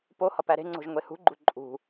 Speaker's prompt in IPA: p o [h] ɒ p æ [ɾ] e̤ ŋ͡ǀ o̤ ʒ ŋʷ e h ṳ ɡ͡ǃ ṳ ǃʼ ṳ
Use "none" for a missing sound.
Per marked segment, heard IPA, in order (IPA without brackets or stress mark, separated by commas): h, ɾ